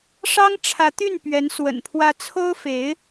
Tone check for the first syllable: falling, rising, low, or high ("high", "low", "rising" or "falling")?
high